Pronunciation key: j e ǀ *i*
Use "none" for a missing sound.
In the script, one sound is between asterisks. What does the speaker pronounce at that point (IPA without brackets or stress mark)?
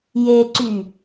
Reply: y